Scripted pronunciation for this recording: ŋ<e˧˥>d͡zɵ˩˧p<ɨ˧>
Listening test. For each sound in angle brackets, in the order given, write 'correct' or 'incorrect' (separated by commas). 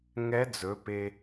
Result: incorrect, incorrect